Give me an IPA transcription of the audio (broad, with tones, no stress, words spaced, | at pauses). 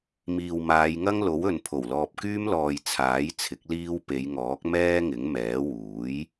miː˨wmaː˨˧jŋɐ˥ŋlo˨˥w ɵ˨npʰo˨˩w lɔː˨p̚kyː˥mlɔː˨j t͡sʰaː˨˥jt͡sʰɪ˨˥k̚ liː˧w pe˨˧jŋɔː˨˥k̚ mɛː˥ŋɪ˨˥ŋmɛː˨˥ wuː˨˥j